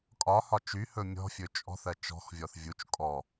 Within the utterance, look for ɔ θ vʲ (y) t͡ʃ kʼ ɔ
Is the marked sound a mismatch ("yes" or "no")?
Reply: yes